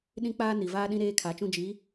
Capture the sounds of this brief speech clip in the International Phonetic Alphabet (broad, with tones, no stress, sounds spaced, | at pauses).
ɗ ĩ˦ k͡p aː˦ n i˨ v aː˦ ɗ ĩ˦ ɾ eː˦ kʰ a˨˦ t͡ʃ ũ˦ d͡ʒ i˨˦